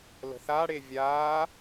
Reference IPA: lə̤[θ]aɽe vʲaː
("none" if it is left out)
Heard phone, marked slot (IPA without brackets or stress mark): θ